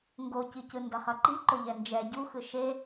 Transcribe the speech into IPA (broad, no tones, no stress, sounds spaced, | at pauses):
ŋ ɡ o c i c ɯ n d ʌ χ ʌ ǃ i ǃ o ʎ ɛ n d͡ʒ ɛ ɟ u x ɯ ʃ e